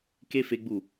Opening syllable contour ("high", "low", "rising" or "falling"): high